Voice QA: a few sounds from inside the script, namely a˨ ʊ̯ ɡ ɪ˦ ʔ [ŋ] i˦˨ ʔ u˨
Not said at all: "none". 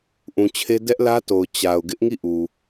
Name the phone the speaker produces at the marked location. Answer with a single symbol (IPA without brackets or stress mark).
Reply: ŋ